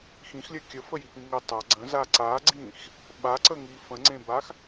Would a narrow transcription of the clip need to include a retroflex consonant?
no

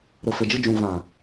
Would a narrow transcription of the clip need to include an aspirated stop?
no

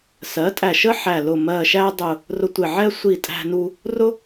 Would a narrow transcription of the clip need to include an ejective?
yes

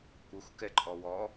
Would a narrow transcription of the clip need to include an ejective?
yes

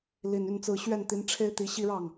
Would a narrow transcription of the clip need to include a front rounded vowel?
yes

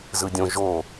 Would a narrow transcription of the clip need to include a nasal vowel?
yes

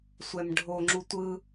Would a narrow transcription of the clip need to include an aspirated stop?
no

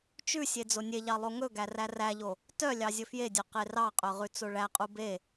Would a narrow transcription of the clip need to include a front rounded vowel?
yes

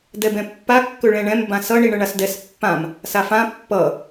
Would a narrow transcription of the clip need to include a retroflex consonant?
yes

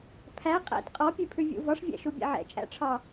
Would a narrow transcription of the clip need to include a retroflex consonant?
yes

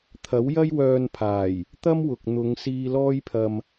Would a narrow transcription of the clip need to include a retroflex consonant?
no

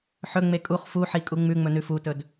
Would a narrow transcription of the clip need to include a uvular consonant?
yes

